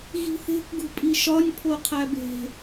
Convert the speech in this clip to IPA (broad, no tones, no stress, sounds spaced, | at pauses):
ɣ i̤ θ e̤ k ɡ ṳ pʼ i ʃ ɒ nʲ pʰ o qʰ æ b e̤